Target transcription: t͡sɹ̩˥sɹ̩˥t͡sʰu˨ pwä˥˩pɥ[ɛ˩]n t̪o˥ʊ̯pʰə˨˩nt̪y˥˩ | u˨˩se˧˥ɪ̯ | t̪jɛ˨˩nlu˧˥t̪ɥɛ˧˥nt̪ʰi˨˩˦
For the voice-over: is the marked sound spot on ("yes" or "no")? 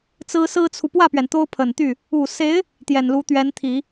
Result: yes